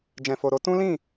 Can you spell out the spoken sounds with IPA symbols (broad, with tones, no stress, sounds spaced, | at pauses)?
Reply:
d͡ʒ ɛ̃˨ f o˨ ɾ o˨˦ t ũ˦ l ĩ˦˨